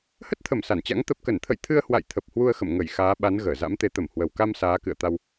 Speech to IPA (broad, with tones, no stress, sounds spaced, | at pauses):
h ə˦˥ t̚ t̪ʰ ə˧˩ m s a˧˩ n t͡ɕ a̰˧˥ ŋ t̪ ə˨˩ p̚ k ə˧˩ n t̪ʰ ə̰˧˨ j t̪ʰ ɨ˧ ə̯ h w a̰˧˨ j t̪ʰ ə˨˩ p̚ h w u˧ ə̯ x ə̰˧˨ m ŋ ə˧˩ j x aː˨˦ ɓ a˨˦ n ɣ əː˧˩ z a̰˧˥ m t̪ e˨˦ t̪ ə˧˩ m h w ə˨˩ w k a˧ m s aː˨˦ k ɨ̰˧˨ ə̯ t̪ a˧ w